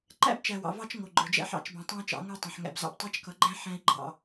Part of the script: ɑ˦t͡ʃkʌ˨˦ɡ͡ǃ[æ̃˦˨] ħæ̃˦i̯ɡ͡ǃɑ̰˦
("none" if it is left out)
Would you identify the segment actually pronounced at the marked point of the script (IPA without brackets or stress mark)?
æ̃˦